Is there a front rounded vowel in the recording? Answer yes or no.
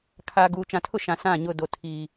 no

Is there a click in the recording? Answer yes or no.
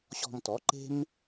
yes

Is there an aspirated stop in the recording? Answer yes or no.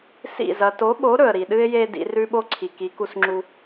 yes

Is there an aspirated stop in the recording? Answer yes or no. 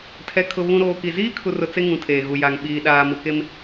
yes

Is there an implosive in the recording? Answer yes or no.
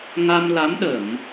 yes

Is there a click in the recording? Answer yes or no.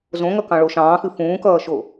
no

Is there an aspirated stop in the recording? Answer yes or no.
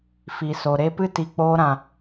no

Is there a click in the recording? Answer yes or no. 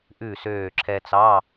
yes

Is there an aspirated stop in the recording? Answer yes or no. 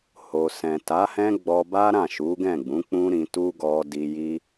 no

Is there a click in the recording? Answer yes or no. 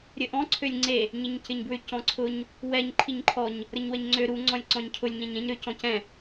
yes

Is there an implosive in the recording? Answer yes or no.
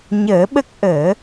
yes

